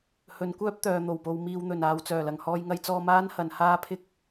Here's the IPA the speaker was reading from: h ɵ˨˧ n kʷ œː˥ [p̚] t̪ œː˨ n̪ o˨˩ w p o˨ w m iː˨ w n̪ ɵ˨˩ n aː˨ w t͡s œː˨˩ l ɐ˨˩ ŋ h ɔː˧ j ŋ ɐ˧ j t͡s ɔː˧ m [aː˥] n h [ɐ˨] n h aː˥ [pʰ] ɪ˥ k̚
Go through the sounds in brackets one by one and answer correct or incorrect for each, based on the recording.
correct, correct, correct, correct

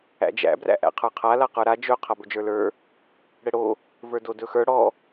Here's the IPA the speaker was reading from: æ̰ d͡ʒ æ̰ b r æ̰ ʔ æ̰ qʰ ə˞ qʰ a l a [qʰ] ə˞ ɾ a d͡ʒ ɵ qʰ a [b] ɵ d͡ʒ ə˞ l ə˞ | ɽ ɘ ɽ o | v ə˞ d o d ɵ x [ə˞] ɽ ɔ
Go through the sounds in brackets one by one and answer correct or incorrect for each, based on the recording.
incorrect, correct, correct

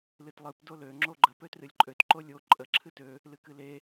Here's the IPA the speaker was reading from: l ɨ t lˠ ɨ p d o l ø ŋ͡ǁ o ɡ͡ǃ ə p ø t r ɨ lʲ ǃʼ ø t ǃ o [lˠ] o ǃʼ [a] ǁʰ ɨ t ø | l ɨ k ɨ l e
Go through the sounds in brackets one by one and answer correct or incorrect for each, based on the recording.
incorrect, incorrect

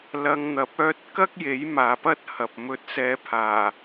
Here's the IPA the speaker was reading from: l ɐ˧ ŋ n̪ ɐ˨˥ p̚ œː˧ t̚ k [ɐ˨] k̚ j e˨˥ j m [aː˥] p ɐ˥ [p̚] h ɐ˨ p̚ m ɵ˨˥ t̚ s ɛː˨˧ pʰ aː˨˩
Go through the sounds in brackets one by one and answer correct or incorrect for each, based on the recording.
incorrect, incorrect, incorrect

